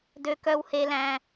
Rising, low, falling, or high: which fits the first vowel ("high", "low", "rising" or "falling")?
high